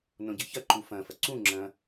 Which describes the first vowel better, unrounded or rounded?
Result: rounded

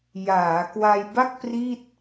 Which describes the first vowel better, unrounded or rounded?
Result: unrounded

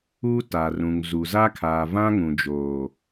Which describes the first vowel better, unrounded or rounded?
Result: rounded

